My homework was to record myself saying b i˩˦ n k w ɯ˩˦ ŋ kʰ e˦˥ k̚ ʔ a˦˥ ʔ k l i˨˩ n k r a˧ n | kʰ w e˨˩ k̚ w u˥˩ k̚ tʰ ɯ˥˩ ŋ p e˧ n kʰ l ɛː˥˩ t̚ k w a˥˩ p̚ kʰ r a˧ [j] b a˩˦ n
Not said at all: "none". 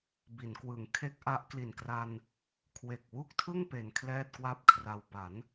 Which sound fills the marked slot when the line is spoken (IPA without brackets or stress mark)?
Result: w